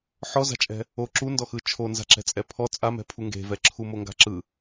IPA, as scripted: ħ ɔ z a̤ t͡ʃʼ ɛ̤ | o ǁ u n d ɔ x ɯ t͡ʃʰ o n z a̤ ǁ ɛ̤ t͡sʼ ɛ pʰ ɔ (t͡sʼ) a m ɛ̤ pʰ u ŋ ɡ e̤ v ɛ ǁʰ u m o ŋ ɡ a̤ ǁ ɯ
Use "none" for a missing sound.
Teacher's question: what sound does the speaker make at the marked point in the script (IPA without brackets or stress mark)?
t͡sʼ